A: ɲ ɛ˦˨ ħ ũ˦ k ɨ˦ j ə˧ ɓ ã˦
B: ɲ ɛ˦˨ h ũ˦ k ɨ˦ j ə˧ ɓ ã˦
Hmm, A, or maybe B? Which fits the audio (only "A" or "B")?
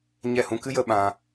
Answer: B